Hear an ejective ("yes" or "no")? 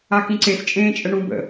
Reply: yes